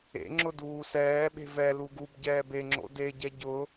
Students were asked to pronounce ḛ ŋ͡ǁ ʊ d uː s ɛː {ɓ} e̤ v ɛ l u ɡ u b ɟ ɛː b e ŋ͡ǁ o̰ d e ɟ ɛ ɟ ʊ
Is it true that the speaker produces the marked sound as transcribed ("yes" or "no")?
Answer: yes